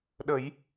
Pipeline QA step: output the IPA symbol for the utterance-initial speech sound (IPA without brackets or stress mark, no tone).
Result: ɗ